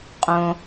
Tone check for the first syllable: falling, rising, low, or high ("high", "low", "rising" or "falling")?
low